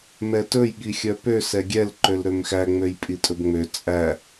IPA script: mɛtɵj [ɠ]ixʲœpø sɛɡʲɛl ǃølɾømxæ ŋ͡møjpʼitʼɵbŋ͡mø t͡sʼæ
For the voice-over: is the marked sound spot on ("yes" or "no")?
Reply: yes